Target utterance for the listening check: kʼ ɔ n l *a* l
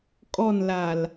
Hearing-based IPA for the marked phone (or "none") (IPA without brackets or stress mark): a